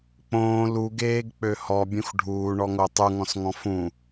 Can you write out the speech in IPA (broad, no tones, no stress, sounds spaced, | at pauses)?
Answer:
k͡p õː l u ɡ eː ɡ k͡p ø h ɔ bʲ ũ x ɖʱ uː ɳ ɔ ŋ o tˤ u ŋ ɔ̃ s ŋ ɔ̃ f ũ